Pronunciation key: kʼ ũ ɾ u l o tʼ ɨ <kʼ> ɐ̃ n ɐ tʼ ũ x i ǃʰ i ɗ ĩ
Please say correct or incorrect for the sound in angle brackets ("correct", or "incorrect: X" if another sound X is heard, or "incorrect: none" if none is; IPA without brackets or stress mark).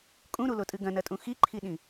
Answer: incorrect: ɡ